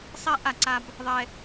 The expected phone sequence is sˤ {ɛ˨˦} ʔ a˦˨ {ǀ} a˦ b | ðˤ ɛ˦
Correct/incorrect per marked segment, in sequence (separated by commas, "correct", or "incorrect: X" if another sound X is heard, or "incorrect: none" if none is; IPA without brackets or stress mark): incorrect: ɛ˦, correct